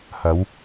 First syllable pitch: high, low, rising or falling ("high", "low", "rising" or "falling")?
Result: rising